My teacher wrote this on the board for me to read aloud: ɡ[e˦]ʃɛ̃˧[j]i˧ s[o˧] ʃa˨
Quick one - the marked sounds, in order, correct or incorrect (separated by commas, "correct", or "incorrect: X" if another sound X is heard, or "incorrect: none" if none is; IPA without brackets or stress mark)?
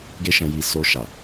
correct, correct, correct